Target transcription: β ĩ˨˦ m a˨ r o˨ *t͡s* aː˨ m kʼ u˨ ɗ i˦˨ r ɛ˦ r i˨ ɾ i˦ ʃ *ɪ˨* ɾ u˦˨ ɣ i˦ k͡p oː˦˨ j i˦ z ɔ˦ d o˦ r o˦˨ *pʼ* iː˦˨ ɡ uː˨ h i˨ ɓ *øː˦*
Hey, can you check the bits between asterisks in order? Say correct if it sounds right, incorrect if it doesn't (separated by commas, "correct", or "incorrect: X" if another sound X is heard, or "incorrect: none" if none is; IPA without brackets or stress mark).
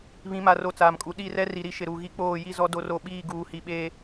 correct, correct, incorrect: ɓ, incorrect: eː˦